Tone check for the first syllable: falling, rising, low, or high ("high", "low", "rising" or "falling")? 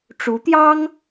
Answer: rising